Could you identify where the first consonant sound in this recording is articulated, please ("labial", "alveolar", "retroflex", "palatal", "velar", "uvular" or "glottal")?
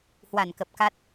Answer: glottal